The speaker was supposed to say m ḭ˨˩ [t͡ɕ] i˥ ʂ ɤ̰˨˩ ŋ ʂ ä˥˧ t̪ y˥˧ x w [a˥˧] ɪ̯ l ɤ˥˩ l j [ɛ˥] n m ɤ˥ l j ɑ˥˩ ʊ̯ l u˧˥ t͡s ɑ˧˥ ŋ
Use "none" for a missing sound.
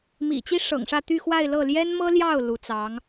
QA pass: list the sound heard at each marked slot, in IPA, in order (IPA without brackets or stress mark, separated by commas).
t͡ɕ, a˥˧, ɛ˥